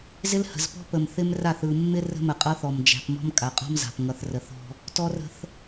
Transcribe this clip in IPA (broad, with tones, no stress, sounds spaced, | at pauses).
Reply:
z ɪ˦ l h ə̤˨ z p ɔ̤˦ p ə˨ m θ ɪ˦ m r a˦˨ θ ɯ˨ mː ɪ˦ r ə̤˦ m ə˨ qʼ ʌ˦ θ ɔ˨ m d͡ʒ æ̤˨ p m ɔ̤˦ m kʼ a˨ qʼ ɔ̤˦ m z a̤˨ p ŋ ʌ˨ θ r ə˨ θ ɔ̤˦ | t ɔ˦ r ə̤˦ θ